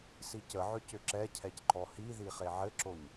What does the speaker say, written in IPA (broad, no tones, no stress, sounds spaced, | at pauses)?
s i c ə ʕ ʏ c ʏ ǁ ɛ cʰ ɛ c ǃ ɔ h i ð i χ e ʕ ɘ ǁ o ɲ